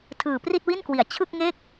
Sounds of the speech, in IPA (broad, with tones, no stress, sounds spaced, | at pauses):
tʰ ɯː˨˩ p r i˥˩ t̚ w i˥˩ n k w i˩˦ a̯ t͡ɕʰ ɯ˥˩ k̚ ŋ e˥˩ k̚